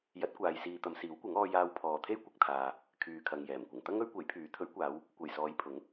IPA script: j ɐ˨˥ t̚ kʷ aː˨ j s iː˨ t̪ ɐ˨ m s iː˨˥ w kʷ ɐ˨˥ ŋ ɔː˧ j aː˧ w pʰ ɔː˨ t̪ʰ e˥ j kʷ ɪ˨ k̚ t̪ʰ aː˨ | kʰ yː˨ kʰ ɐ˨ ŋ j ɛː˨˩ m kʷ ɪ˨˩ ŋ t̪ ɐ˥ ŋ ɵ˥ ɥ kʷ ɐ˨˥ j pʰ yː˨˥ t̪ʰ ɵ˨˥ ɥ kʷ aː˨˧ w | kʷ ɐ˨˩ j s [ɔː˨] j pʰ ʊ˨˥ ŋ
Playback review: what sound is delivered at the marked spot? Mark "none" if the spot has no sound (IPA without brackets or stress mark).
ɔː˨˧